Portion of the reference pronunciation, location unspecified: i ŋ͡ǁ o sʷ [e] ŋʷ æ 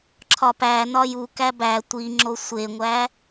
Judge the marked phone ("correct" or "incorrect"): correct